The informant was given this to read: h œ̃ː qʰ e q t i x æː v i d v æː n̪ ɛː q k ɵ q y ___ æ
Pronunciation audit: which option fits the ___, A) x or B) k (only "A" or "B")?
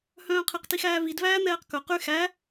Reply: A